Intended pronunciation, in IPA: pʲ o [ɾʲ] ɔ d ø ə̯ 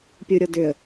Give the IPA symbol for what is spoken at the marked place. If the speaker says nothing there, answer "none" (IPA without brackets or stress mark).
ɾʲ